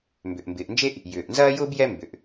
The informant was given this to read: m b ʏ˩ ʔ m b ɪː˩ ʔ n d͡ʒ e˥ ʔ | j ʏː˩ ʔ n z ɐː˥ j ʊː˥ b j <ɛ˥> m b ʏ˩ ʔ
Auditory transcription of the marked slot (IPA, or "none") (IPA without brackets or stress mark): ɛ˥